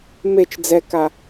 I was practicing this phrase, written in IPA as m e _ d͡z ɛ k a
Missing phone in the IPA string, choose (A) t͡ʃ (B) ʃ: A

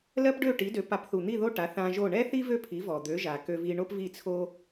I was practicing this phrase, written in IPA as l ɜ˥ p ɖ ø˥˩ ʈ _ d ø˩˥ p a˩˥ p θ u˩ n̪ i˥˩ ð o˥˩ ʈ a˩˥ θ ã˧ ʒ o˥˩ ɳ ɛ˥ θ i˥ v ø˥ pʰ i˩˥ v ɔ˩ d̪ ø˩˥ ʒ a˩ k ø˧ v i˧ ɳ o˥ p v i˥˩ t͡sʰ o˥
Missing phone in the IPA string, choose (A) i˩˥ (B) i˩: A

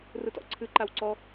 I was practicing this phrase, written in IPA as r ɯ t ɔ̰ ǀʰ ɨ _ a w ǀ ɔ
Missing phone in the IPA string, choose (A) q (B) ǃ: B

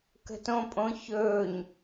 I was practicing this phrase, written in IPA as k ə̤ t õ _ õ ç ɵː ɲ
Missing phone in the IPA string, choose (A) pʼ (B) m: A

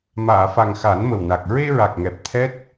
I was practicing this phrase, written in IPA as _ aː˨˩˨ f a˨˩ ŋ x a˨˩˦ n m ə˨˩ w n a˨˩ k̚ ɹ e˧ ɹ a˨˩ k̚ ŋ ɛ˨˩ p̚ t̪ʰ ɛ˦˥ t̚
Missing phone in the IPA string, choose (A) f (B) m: B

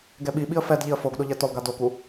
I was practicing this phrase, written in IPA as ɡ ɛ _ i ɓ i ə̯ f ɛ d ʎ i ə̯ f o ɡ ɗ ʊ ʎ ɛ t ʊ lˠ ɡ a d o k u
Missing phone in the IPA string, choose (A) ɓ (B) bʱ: A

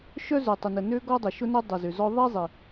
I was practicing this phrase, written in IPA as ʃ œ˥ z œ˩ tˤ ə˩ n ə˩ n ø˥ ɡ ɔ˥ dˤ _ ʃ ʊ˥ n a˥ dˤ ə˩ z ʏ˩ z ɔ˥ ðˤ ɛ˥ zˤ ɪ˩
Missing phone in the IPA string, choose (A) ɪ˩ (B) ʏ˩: A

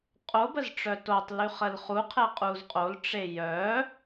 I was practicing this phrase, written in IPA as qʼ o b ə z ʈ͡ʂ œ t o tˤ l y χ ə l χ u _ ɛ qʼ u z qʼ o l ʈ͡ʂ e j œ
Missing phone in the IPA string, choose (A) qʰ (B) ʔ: A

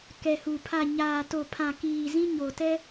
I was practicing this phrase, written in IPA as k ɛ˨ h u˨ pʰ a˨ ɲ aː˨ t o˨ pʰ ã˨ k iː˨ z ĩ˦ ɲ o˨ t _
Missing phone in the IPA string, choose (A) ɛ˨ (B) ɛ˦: B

